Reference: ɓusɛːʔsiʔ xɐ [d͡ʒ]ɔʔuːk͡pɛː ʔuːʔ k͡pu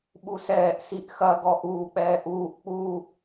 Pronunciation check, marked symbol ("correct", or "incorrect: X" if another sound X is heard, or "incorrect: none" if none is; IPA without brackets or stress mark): incorrect: ɡ